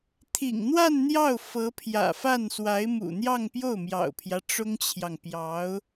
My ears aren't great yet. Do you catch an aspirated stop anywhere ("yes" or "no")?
yes